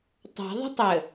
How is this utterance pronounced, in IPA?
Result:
tˤa̤ ðˤə̤tˤə

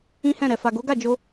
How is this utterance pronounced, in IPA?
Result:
ĩ˦hɛ̃˦˨ɾɛ˨ fa˨ɡo˨˦ɡa˦˨d͡ʒo˧

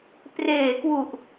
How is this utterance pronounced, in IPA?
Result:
preː˨˩kwu˨˩ʔ

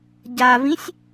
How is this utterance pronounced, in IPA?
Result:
ɟavĩsʲ

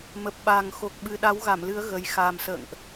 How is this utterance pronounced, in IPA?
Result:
mə˨˩p̚ɓa˨˩ŋ xo˨˩k̚ɓɨ˨˩ɗa˨˦w ɣa˧˩mlɨ˨˦ə̯ ɣə˨˩j xaː˨˩msə̰ː˧˨ŋʔ

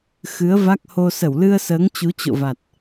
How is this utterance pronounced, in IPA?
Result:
xɨ˨˦ə̯va˦˥k̚ho˧ sə˧˩wlɨ˧ə̯səː˨˦ŋ t͡ɕu˨˦t͡ɕo̰˧˨va˨˩t̚

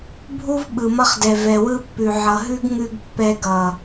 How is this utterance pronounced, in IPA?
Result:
bʱu˦v ɓɯ˨mʌ˧χdɛ˨ vɛ˨wɯ˧pːʉ˨ ʕʌ˨ɦʉ˦ɡ ŋʉ˧ɡ pːɛ˧ɡʌ˨

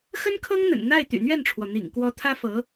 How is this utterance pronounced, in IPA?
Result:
xə˥nkʰɤ˥ŋn̪ə̰˨˩n n̪a˥˩ɪ̯t̪y̰˨˩n̪ɥɛ˥˩nʈ͡ʂʰwɔ˩ n̪ḭ˨˩ŋkwɔ˧˥ t̪ʰä˥fɤ˧˥

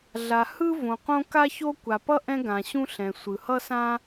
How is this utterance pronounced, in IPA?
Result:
ɮa˩ hɯ˥ võ˩qõ˥ ka˥ço˥ kʷa˩pʌ˥ ʔɛ̃˥ɡã˩ɕũ˥ ɬɛ̃˩ sʷɯ˩hʌ˥sã˥

